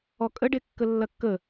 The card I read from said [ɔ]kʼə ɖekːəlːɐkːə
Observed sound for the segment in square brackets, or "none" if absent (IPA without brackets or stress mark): ɔ